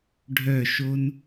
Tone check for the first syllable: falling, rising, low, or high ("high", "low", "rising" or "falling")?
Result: falling